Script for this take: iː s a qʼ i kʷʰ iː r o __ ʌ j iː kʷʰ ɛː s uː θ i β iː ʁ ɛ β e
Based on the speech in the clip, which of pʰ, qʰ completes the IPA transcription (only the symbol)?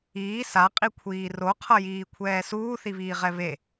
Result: qʰ